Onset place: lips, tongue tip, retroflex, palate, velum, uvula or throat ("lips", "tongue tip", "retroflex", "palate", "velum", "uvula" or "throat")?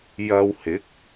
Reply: palate